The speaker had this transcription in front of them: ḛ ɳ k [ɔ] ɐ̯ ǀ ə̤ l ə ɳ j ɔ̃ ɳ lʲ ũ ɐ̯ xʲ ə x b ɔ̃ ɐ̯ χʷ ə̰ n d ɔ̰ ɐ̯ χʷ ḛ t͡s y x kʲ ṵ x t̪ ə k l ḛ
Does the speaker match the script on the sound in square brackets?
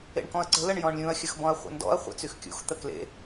no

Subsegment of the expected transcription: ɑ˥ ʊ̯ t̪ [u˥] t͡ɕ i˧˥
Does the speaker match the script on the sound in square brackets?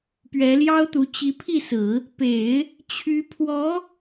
no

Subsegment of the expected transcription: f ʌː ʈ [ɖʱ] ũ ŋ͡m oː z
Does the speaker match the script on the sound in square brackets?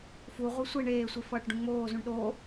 no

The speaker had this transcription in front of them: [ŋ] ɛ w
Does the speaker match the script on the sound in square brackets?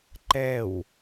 no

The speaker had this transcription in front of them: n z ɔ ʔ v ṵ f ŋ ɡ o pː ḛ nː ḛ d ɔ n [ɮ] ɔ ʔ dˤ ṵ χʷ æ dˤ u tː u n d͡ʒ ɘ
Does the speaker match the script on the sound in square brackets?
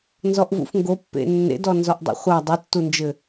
no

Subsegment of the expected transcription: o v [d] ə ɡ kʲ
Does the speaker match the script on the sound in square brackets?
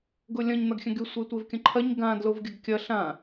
no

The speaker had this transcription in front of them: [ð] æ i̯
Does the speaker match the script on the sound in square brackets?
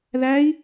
yes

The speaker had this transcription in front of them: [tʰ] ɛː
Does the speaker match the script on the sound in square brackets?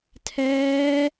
yes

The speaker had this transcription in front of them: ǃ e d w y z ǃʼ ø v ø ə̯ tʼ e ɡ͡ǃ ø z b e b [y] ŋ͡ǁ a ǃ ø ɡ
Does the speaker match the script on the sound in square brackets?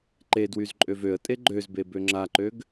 no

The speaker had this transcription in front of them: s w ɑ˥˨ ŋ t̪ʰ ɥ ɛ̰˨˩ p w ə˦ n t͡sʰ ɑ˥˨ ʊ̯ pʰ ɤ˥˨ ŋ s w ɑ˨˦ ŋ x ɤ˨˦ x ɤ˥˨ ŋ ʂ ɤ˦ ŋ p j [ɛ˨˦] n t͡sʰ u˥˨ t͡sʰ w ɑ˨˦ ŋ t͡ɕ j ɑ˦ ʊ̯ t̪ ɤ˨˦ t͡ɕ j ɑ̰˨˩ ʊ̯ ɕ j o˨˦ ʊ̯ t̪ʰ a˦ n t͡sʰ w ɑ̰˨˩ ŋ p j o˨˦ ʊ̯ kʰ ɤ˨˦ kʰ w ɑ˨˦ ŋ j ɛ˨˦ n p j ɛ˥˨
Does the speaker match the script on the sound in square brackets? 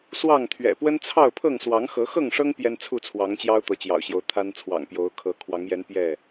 no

